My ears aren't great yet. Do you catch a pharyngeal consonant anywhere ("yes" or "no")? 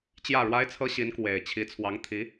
no